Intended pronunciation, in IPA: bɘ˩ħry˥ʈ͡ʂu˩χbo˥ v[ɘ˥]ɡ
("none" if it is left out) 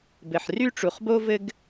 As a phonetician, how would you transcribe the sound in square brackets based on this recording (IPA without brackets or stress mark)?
ɘ˥